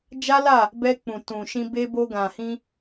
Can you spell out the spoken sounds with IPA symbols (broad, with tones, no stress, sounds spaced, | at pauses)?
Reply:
d͡ʒ a˦ l a˦˨ | b ɛ˧ k͡p ũ˨ t ũ˨ ʃ ĩ˧ b e˧ b o˧ ɡ ã˨ h ĩ˧